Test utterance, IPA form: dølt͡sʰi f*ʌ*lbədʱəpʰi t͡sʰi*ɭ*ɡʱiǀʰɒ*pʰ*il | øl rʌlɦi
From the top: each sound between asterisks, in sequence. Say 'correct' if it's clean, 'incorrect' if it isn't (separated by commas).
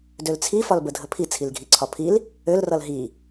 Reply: incorrect, incorrect, correct